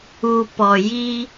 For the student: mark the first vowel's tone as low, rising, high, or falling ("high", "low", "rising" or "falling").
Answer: low